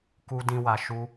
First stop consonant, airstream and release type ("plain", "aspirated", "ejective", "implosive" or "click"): plain